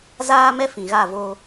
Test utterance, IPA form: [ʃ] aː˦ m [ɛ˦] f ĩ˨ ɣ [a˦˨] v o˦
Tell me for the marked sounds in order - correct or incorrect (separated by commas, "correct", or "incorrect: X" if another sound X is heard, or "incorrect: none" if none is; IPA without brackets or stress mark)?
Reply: incorrect: z, correct, correct